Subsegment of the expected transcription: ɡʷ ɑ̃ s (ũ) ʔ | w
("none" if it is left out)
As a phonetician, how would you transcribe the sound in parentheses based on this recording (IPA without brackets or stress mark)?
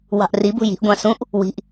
ũ